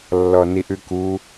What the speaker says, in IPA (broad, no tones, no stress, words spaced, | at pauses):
lːɔniʔʉku